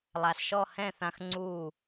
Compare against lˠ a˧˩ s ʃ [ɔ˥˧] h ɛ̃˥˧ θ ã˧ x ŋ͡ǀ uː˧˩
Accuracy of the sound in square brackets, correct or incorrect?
correct